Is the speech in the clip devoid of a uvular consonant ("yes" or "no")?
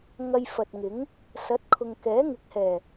yes